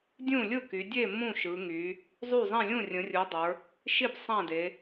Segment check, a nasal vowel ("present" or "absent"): present